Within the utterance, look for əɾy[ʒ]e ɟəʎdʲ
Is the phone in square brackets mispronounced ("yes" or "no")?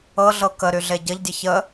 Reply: yes